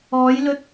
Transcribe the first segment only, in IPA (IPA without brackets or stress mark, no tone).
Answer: ɔː